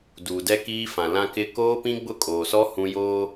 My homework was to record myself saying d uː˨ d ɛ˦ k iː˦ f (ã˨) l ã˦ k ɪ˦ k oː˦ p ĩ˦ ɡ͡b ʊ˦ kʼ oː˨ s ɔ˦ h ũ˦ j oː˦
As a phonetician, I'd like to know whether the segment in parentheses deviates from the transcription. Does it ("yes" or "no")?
no